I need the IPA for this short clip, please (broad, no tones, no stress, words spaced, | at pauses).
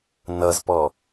nʌzpɔ